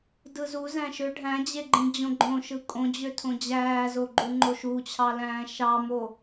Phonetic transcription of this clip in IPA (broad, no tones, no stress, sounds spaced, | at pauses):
d ɯ z u z æ̃ ʃ ø ɖʱ æ̃ d͡ʑ e ɡ͡ǃ ĩ d͡ʑ õ ɡ͡ǃ õ ʃ ɯ kʼ õ d͡ʑ ø tʰ õ d͡ʑ æː z o ɡ͡ǃ u ŋ͡ǃ o ʃ u t͡ɕʰ ɑ l æ̃ː ʃ ɑ m o